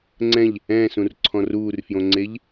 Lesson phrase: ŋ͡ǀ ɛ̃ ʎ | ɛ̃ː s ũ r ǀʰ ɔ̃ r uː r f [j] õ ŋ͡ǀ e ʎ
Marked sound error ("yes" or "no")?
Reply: no